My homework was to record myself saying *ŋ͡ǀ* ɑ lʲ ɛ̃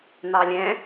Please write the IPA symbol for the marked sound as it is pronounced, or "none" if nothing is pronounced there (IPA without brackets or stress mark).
n̪